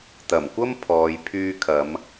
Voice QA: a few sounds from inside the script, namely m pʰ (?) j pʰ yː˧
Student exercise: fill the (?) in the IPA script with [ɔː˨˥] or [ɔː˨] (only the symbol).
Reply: ɔː˨